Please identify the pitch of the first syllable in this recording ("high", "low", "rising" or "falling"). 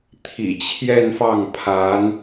low